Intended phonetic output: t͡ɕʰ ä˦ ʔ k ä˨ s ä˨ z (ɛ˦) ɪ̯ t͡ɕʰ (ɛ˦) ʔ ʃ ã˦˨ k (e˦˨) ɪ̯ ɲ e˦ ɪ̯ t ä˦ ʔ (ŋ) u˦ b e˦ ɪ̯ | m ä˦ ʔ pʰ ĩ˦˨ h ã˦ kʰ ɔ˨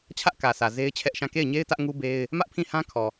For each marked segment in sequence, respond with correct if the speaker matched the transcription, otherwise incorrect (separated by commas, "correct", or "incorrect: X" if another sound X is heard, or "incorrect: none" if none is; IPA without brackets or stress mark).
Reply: incorrect: e˦, correct, correct, correct